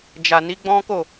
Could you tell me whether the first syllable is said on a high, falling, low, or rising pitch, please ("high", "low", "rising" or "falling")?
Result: low